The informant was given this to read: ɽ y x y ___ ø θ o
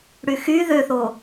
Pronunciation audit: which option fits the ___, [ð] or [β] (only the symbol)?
ð